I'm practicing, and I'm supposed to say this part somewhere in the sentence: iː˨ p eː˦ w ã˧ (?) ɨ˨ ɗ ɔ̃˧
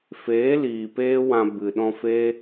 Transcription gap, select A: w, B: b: B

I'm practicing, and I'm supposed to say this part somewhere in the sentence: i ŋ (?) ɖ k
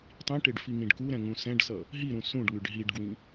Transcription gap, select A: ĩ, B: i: A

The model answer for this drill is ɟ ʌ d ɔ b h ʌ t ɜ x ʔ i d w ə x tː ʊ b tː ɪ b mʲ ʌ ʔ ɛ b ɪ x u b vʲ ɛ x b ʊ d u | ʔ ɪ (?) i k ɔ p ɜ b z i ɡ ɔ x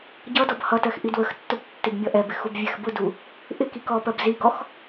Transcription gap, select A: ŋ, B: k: B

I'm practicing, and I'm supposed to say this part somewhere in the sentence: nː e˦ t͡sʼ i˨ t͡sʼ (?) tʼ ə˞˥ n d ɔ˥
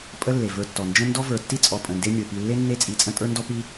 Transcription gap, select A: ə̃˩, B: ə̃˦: B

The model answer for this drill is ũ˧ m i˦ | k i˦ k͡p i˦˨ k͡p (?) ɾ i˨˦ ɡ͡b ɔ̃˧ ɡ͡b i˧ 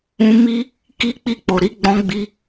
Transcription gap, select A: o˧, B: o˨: B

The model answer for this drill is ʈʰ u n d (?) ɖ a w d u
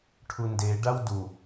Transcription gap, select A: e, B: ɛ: A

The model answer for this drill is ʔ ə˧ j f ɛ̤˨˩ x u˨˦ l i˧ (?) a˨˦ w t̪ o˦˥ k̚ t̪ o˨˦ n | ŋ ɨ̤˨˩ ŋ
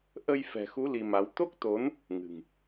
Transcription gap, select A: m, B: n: A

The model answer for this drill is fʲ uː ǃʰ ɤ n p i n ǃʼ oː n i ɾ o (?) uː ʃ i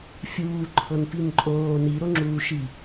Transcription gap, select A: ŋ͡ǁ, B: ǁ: A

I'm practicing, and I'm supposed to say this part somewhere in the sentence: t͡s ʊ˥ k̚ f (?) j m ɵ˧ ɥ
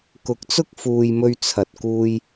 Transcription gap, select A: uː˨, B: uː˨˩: A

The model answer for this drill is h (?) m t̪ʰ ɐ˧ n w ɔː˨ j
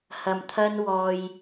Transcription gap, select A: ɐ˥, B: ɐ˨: B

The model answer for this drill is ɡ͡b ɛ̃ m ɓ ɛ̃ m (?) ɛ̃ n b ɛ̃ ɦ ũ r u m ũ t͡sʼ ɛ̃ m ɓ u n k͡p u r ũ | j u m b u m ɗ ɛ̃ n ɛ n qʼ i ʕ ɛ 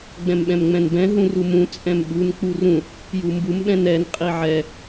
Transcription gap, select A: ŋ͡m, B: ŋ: A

